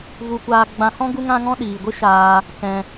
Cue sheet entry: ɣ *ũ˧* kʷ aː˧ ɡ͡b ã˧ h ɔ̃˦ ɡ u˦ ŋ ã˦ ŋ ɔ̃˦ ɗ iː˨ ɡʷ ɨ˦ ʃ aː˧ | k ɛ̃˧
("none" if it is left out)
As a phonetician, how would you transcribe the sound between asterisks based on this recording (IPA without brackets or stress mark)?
u˧